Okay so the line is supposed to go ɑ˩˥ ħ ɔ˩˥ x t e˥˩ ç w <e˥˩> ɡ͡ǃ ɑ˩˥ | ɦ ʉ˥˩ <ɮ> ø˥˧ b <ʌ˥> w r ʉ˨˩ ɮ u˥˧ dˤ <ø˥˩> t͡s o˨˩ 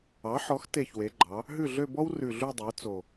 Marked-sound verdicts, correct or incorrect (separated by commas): incorrect, correct, incorrect, incorrect